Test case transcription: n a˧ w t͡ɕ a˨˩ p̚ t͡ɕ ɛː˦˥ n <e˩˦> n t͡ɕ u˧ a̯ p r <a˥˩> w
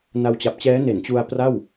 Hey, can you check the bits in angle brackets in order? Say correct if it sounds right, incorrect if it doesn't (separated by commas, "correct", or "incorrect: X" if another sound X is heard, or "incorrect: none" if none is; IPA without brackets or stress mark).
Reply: correct, correct